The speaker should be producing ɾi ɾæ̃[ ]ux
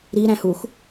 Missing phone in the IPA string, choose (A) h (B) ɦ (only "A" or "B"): A